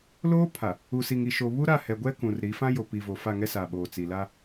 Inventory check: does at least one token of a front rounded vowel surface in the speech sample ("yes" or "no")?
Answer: no